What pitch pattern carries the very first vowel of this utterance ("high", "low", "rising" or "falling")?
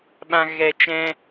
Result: low